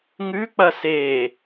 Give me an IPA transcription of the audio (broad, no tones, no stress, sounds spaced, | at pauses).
ŋ ʉ k͡p ɐ s e